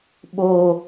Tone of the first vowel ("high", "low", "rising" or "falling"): high